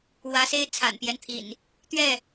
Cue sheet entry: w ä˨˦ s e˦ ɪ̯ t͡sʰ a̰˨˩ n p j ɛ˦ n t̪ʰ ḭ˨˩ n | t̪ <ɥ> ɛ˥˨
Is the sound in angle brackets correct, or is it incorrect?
correct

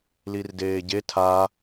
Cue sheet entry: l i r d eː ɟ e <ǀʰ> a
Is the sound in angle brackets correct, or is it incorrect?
incorrect: tʰ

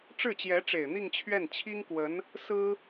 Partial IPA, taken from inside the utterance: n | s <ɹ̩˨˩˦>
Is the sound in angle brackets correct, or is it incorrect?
incorrect: ɹ̩˥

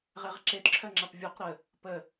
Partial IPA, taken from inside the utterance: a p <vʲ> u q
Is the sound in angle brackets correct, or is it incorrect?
correct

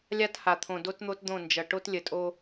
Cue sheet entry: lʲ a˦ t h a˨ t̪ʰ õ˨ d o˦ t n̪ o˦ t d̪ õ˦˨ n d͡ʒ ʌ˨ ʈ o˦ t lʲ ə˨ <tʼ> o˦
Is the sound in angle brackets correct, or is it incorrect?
correct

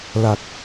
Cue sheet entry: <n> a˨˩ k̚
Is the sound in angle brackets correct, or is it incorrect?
incorrect: l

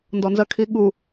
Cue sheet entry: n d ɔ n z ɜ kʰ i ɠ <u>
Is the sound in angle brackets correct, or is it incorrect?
correct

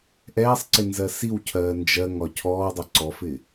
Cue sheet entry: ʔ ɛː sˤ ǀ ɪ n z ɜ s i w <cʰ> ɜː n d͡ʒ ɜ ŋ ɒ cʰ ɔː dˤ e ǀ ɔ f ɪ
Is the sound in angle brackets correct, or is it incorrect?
correct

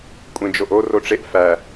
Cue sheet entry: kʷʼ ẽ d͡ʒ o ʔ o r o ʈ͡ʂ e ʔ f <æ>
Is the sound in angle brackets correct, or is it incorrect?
correct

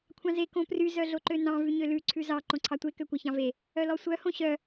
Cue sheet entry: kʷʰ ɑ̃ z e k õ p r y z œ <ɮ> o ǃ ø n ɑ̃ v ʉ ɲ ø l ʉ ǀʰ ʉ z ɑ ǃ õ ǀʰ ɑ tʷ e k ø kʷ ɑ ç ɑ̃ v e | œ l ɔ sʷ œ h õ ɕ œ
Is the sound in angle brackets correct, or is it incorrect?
correct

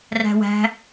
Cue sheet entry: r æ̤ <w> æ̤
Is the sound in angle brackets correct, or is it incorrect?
correct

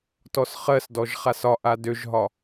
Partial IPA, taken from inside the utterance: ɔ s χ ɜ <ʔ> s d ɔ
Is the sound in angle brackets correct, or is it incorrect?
incorrect: none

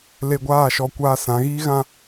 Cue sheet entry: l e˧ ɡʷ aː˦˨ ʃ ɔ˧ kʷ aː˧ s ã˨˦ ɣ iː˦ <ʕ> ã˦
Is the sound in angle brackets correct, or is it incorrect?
incorrect: ɣ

